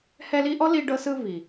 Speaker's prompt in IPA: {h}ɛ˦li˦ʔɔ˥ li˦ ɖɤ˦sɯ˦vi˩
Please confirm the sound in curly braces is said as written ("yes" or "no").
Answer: yes